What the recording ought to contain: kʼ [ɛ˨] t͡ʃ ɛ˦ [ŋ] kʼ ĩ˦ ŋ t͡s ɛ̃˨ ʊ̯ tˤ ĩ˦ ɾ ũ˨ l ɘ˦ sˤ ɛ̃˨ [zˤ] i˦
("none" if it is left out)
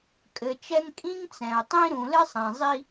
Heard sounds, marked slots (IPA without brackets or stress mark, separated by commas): ɘ˨, ŋ, zˤ